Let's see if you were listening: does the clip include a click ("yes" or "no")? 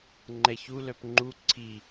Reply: yes